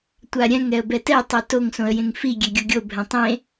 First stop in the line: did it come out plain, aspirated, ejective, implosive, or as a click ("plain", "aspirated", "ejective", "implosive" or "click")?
plain